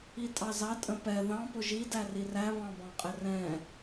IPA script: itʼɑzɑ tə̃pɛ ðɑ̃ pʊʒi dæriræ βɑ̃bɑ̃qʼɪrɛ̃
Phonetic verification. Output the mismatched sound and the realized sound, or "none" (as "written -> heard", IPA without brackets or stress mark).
t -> tʼ